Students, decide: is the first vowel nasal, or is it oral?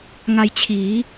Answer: oral